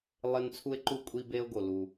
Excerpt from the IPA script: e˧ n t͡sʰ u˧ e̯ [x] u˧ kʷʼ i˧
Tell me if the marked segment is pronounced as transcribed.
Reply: no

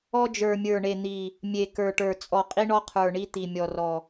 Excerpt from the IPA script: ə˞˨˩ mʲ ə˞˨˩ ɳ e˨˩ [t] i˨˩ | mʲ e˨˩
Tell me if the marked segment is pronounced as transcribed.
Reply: no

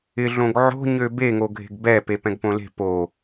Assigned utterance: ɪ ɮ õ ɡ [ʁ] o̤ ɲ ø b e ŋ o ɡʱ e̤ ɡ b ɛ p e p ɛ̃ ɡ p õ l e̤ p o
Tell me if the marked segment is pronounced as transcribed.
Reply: no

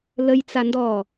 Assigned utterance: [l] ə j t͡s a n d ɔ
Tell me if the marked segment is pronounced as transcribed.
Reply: yes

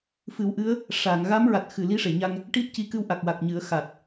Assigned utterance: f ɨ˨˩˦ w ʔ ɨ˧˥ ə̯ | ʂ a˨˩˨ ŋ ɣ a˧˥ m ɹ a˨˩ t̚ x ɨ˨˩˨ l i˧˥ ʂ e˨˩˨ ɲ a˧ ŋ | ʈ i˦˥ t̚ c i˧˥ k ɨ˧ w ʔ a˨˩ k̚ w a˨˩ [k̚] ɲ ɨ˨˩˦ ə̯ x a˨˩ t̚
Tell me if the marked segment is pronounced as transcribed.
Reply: yes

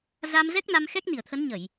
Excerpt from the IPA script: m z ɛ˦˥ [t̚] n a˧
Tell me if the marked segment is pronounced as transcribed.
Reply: no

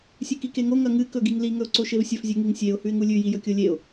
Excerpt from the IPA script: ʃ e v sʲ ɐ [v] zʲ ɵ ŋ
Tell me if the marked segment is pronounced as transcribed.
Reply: no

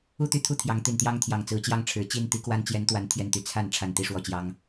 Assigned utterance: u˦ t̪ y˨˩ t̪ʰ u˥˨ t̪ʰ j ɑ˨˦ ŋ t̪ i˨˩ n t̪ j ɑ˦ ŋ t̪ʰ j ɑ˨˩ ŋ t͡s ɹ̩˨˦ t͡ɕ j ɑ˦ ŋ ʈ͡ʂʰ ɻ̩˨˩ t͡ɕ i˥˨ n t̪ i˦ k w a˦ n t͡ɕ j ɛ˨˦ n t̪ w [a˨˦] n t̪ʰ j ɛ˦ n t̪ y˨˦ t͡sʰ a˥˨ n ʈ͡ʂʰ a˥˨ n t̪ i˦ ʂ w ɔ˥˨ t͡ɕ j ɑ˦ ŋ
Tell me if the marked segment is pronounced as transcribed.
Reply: yes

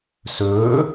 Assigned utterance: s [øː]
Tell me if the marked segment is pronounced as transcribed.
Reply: no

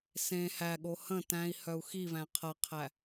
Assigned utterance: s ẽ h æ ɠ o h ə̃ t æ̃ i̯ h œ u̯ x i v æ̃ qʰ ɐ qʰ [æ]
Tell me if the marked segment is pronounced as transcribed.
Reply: yes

